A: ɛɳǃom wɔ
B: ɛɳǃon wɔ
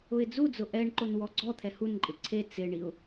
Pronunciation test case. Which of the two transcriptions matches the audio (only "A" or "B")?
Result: B